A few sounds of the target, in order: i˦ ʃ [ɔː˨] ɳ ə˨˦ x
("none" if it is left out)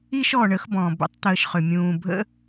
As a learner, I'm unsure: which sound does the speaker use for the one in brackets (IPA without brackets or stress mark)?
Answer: ɔː˨